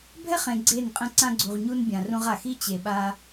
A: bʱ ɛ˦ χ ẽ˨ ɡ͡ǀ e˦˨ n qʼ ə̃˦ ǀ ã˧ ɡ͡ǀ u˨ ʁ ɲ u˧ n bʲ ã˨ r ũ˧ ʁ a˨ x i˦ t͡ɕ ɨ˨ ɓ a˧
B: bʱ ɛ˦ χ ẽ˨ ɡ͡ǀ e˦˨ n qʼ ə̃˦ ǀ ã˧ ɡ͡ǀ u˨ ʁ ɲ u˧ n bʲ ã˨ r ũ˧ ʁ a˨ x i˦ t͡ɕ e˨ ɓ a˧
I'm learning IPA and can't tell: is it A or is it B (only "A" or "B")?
B